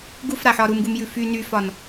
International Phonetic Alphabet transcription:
ɡufɾaħɒ ɾumɡumjʉ fy nyfɒn

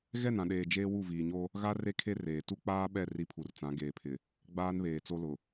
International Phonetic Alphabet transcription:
ɣɛ˦˨nã˨ɗeː˨ d͡ʒeː˦wu˦˨viː˨ɲo˦ | ɣa˦ re˦kʰe˦ reː˨ tu˦k͡paː˦ɓɛ˦˨ ri˦pʰu˨rt͡sã˨˦ ɡeː˨pʰɪ˨ | ɡ͡baː˦nβeː˨t͡so˦lʊ˨

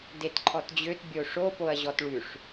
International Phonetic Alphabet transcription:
detǃʰɔtd͡ʑøt bʲoʂo poɐ̯ʑɔtɭʉʂ

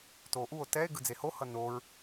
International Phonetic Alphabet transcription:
toʔuo̯ tɛe̯ ɡɯd͡zeho hʌnoɹ

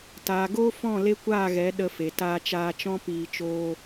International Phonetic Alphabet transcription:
taː˨ɡoː˦fɔ̃˦˨ le˦kʷaː˦˨ɣɛ˨˦ ɗə˧fe˨ taː˧t͡ʃaː˧t͡ʃɔ̃˦ piː˧t͡ʃoː˦

